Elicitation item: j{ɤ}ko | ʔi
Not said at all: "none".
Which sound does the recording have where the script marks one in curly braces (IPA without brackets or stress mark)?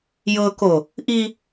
ɤ